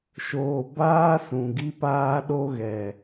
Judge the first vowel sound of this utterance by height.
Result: mid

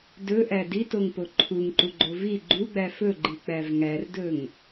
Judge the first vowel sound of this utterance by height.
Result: mid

